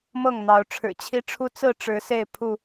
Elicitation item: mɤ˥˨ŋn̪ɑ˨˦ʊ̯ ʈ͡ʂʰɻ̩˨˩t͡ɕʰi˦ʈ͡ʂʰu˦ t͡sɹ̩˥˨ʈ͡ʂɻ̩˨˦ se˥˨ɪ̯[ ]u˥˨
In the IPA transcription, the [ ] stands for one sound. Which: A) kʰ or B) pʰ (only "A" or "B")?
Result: B